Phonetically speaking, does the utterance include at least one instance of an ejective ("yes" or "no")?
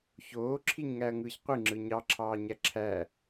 no